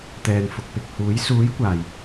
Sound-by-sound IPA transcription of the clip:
t̪ ɛː˨ n f ʊ˨ k̚ p ɪ˨ k̚ h uː˨˥ j s uː˨˥ j kʷ aː˨˩ j

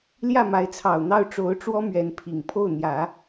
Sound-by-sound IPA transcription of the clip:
l j ä˥˩ m a˧˥ ɪ̯ t͡sʰ ɑ˨˩ ʊ̯ n̪ ɑ˥˩ ʊ̯ ʈ͡ʂ o˧˥ ʊ̯ ʈ͡ʂ w ɔ˥ m ɥ ɛ˧˥ n pʰ i˨˩ ŋ pʰ o˥˩ ʊ̯ n̪ j ä˨˩˦

